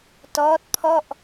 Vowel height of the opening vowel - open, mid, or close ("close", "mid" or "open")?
mid